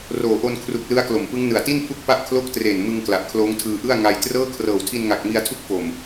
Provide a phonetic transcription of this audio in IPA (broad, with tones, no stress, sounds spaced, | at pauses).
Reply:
r oː˨˩ ʔ o˧ n kʰ r u˨˩ k̚ l ɯ˦˥ a̯ k l o˨˩ m p ɯ˦˥ ŋ n ɯ˨˩ a̯ t i˥˩ n pʰ u˦˥ k̚ p a˦˥ ʔ kʰ l o˥˩ k̚ t r eː˨˩ n m ɯ˧ ŋ k l a˨˩ ʔ kʰ l oː˦˥ ŋ tʰ ɯː˧ ʔ ɯ˥˩ a̯ ŋ a˧ j t r ɤː˥˩ kʰ r ɤː˨˩ w tʰ i˧ n ŋ a˨˩ k̚ m i˧ a̯ tʰ u˦˥ k̚ f o˨˩ m